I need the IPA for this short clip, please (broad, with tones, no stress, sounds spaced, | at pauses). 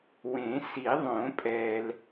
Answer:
w ẽ˨˩˦ s i˨˩˦ ðˤ õ˨˩˦ pʼ ɛː˨ l